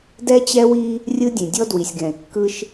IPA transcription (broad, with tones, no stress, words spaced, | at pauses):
dɛ˦t͡ɕɛ˦wi˦ | rʲɯ˦dʲẽ˨ dʲɔ˦dwi˨sʲɡɛ̃˨e̯kːɯ˦ʃ